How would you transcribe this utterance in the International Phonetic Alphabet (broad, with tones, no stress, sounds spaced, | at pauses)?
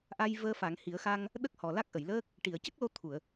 ʔ a˧ j v əː˧ f a˨˩˦ ŋ h i˨˩˦ ə̯ x a˧ ŋ | ɗ ə˦˥ k̚ h ɔ˨˩ l a˦˥ k̚ ʔ ə˨˩˨ j l əː˦˥ k̚ | ʈ i˨˩˨ ə̯ c ə˦˥ k̚ l o˧ t̪ʰ u˨˩˨ ə̯